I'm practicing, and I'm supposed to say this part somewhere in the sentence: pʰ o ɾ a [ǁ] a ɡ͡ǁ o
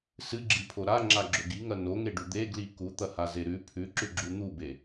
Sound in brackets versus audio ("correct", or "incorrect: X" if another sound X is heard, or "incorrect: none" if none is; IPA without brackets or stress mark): incorrect: ŋ͡ǁ